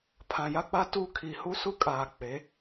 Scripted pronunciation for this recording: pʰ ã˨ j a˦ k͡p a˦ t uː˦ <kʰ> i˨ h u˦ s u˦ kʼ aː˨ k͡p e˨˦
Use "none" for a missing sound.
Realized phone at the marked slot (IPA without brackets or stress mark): kʰ